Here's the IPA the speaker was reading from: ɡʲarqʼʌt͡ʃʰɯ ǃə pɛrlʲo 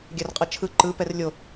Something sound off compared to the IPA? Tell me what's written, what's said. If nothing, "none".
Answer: ə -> ɯ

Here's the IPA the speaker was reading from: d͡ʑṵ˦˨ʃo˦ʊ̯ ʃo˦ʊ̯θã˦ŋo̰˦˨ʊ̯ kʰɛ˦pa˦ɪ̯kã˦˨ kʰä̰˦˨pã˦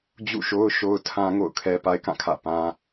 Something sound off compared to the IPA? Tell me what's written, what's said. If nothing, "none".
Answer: θ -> tʰ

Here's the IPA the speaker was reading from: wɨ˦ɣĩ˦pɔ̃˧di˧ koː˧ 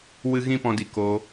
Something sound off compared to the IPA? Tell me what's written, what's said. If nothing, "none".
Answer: none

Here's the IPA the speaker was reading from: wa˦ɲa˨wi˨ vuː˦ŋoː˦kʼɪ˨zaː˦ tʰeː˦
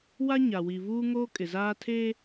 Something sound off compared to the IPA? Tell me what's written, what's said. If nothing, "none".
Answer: none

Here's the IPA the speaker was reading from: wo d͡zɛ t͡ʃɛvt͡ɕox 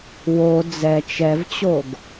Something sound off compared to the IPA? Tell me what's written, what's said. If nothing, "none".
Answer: x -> ɡ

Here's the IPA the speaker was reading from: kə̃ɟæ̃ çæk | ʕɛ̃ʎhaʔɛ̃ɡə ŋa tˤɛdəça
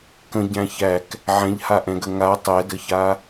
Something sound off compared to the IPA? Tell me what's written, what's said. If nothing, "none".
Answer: none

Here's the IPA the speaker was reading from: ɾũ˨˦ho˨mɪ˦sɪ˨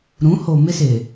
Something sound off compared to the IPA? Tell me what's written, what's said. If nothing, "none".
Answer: none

